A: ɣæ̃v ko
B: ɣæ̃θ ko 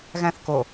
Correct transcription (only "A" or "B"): B